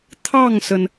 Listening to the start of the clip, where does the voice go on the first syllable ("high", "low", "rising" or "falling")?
falling